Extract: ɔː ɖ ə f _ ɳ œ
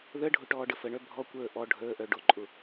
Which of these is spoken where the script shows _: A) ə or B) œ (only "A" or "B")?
A